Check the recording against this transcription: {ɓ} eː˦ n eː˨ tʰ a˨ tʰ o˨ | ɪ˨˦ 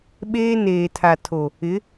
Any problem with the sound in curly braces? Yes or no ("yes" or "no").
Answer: no